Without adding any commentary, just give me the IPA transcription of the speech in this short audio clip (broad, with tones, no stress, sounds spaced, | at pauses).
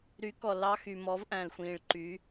ɾ y˨˦ k ɔ˨ l ɑ˦ x y˨ m ɔ˨˦ v ʔ æ̃˨ l xʷ ĩː˨ ɭ ǃ y˨˦